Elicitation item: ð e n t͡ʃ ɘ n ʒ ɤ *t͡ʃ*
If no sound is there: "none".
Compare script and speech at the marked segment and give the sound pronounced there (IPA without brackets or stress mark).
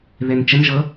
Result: none